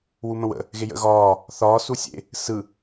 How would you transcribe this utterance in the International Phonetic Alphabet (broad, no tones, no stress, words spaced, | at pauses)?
wumə̃wə̰ | ɣejə̰ ɣɒː | θɒː susʲḛ | sɯ